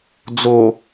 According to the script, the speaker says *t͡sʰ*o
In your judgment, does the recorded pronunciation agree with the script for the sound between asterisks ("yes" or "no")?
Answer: no